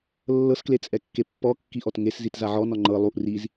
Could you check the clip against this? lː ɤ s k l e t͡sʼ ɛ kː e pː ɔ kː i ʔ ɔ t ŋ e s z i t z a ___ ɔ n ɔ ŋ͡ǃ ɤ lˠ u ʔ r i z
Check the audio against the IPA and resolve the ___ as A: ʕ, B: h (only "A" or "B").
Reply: A